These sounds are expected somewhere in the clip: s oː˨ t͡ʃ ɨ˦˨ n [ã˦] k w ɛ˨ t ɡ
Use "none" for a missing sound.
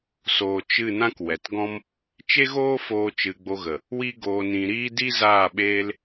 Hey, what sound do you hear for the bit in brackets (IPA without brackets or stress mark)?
ã˦